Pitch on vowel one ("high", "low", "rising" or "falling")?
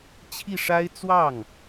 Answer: falling